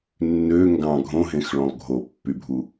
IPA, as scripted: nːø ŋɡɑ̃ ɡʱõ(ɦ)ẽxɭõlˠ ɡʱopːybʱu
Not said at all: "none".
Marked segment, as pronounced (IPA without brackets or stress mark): ɦ